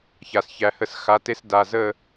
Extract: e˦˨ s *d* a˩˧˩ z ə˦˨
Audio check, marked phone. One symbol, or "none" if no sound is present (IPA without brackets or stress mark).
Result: d